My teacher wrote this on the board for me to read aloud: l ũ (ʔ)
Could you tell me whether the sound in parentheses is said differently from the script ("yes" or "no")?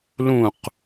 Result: yes